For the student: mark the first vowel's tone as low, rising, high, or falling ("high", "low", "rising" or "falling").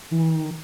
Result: high